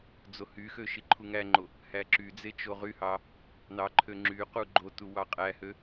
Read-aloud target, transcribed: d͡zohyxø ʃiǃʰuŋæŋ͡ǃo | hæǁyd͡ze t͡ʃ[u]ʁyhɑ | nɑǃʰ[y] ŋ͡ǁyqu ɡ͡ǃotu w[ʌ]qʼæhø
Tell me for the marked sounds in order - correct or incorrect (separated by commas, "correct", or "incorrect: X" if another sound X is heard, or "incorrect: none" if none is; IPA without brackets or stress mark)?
incorrect: o, incorrect: ø, incorrect: ɑ